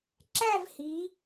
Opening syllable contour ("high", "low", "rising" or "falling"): falling